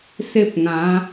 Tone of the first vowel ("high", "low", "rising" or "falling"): high